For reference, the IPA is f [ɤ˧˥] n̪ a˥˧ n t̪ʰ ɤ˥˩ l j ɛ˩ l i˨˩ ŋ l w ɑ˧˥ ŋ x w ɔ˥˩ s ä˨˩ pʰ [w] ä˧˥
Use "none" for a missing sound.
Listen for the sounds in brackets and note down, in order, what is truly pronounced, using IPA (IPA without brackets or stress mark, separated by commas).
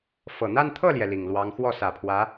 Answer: ɤ˨˩, w